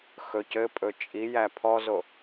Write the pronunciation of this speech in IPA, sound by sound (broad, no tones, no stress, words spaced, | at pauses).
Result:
xɵcɘpʼɵ t͡ʃʼijæ pʰɔzo